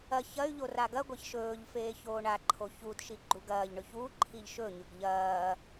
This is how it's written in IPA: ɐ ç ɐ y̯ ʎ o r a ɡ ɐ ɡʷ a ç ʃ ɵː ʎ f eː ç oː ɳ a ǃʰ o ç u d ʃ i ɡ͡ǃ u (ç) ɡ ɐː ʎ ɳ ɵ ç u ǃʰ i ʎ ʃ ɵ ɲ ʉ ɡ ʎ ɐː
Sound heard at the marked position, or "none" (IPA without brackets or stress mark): none